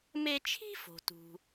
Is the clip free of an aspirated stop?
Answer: no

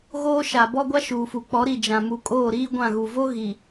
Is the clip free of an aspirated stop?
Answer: yes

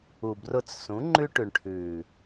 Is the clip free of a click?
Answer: no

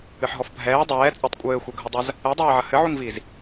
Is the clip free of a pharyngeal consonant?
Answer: no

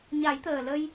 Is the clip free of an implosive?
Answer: yes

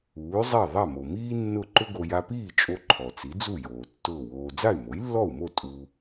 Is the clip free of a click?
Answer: no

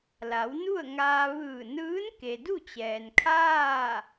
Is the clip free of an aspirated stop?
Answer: no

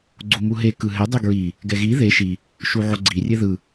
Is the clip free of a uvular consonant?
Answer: yes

